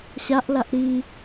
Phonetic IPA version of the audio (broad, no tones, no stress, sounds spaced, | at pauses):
ɕ a ʔ l a ʔ ɾ i